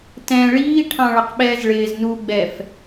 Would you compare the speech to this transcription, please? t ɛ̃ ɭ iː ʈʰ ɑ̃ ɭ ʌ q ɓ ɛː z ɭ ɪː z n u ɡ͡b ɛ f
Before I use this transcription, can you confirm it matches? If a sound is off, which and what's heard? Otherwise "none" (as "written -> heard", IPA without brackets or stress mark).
none